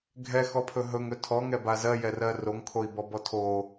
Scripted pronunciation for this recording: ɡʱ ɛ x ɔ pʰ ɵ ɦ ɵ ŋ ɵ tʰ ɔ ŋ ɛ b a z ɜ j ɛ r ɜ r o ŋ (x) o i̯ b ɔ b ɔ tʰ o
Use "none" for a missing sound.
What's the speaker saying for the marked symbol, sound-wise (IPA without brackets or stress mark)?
kʰ